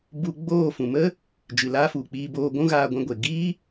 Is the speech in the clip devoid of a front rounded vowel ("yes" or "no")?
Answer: yes